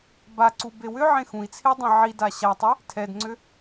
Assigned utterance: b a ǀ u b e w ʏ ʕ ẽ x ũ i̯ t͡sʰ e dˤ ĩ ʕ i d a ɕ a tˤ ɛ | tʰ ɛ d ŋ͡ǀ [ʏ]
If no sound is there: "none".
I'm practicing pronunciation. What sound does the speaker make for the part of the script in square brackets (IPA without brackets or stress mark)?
ʏ